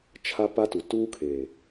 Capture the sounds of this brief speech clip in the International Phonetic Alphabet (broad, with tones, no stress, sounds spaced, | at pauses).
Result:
t͡ʃʰ a˦ p a˦ t u˨ t uː˦ kʰ eː˨